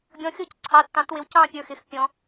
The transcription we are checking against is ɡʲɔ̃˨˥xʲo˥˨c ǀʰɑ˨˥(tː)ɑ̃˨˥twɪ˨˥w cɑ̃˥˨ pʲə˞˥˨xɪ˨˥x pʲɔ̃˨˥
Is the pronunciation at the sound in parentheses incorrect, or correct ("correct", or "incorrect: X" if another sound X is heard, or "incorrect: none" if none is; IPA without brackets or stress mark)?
correct